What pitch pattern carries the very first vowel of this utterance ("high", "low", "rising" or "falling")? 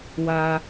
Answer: high